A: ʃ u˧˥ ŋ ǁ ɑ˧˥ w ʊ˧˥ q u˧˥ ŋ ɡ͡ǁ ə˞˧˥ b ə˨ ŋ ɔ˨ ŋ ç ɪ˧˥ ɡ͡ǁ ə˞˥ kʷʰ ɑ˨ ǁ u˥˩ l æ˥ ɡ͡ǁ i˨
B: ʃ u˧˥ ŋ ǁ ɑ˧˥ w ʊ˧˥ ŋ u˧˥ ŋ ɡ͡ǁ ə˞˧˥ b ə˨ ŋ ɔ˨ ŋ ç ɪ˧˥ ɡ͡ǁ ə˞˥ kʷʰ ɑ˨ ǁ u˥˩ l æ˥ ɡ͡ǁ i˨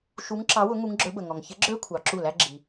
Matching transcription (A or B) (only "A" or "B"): B